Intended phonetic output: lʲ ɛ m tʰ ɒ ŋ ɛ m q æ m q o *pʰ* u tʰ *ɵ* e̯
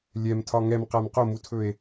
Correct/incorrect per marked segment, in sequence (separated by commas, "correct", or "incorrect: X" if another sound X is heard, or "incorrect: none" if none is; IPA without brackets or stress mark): incorrect: m, correct